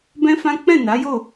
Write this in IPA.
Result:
bɛ̃˦fã˦ k͡pɛ̃˦˨na˨˦jo˦˨

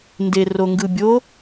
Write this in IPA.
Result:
nderoŋɡɯbʲo

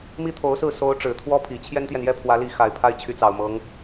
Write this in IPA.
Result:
mi˥t̪ʰo˧˥ʊ̯sɹ̩˥˩ so˧˥ʊ̯ ʈ͡ʂɻ̩˨˩t̪ʰwɔ˥pʰi˨˩ t͡ɕʰjɛ˥nt̪jɛ˨njɛ˥˩ pʰwä˧˥li˧˥ xa˨˩ɪ̯pʰa˥˩ɪ̯t͡ɕʰy˧˥t͡sɑ˨˩ʊ̯ mɤ˧˥ŋ

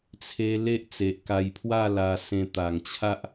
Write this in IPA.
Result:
t͡sʰe˦ le˦ʔt͡se˨ʔ ka˧jpʰwa˥˧la˧sẽ˧ t̪a˨˩ŋt͡ɕʰa˦ʔ

